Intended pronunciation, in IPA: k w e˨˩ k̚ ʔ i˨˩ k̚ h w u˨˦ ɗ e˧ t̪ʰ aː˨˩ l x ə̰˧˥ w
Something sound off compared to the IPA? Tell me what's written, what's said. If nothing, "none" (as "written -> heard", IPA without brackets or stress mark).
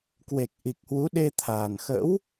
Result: l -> n